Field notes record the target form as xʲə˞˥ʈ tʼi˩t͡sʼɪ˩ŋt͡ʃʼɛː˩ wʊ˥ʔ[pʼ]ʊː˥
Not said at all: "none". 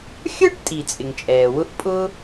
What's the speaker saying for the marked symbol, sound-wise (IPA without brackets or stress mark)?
pʼ